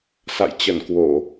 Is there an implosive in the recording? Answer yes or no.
no